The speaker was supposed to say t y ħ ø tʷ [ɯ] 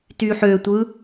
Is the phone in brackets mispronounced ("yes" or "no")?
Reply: no